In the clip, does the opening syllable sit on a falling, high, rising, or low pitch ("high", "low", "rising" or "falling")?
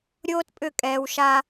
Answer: high